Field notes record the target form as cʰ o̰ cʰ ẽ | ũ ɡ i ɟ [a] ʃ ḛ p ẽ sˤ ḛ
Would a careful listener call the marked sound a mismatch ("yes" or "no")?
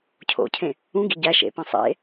yes